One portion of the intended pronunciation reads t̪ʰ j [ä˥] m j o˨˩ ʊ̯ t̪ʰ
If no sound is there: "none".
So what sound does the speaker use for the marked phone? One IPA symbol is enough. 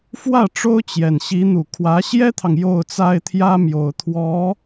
ä˥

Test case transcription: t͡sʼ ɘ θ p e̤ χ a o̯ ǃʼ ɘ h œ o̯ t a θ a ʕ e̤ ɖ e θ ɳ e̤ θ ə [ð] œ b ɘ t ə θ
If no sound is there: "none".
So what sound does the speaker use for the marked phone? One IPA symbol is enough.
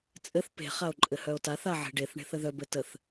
ð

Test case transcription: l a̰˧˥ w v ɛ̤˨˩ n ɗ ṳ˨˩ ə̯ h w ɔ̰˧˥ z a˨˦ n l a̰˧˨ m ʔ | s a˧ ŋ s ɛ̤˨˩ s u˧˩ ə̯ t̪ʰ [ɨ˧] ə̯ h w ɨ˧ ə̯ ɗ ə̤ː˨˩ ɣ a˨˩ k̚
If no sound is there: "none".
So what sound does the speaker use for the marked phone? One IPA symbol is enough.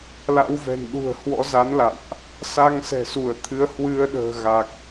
ɨ˨˦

